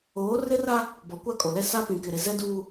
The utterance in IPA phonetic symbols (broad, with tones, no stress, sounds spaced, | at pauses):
oː˨˦ r ɪ˦ r a˦ | b ɔ˨ kʷ a˦ kʼ o˨ l ɛ˦ s a˦ p ĩ˨ k ɪ˨ ɾ ɪ˨ z ɛ˦ d uː˦